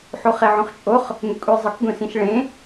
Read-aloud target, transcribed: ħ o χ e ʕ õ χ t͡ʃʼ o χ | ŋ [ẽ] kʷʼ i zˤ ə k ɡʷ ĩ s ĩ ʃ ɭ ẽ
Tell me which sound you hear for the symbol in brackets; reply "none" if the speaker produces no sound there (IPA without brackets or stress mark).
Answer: e